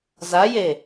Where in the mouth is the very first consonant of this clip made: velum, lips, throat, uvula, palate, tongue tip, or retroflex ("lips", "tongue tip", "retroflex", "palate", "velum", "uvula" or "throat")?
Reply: tongue tip